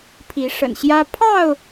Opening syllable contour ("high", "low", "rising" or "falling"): rising